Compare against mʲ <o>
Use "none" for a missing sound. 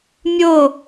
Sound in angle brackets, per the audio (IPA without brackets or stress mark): o